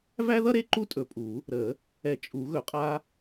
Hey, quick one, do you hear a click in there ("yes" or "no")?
yes